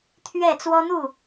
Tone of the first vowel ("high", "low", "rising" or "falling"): falling